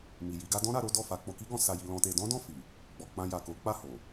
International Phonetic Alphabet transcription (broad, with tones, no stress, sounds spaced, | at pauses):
m i˨ j i˨˦ ɡ a˦ d ɔ̃˦ ɾ a˧ ɾ o˦ d ɔ˦˨ f a˧ k͡p o˧ k i˦ ɡ ɔ̃˧ s a˧ j i˧ l ɔ̃˧ t e˧ d ɔ̃˦ d ɔ̃˦˨ f i˨ | ɡ͡b ɔ˧ k͡p ã˧ j a˨ k o˨˦ k͡p a˦˨ h o˨